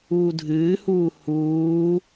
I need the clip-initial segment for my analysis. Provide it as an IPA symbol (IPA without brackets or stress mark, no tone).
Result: uː